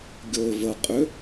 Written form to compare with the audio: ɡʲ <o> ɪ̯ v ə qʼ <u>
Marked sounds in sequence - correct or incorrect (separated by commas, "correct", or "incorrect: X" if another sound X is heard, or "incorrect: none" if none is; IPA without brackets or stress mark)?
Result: correct, incorrect: ʏ